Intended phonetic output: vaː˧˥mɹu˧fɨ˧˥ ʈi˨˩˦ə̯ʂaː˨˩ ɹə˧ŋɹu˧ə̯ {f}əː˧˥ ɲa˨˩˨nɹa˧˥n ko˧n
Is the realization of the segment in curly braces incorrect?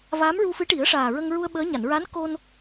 yes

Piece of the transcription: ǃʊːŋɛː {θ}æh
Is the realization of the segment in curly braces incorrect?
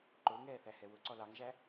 no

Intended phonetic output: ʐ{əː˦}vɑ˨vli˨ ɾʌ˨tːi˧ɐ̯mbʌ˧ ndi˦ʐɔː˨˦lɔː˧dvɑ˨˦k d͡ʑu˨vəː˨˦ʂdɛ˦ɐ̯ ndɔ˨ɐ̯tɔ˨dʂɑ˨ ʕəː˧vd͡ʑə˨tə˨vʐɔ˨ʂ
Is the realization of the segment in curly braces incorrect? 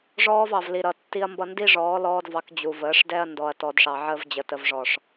yes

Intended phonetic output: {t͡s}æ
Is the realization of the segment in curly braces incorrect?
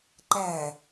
yes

